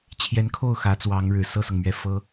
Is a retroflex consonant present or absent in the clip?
present